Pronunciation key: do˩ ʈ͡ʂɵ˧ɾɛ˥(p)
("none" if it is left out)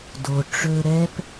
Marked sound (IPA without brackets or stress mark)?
p